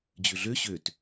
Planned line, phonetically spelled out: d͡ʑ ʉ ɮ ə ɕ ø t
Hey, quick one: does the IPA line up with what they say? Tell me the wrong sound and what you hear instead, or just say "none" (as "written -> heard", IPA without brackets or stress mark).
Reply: ə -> ø